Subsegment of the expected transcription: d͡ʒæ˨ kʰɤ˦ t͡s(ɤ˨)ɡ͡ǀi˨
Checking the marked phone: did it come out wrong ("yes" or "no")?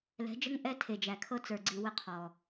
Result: yes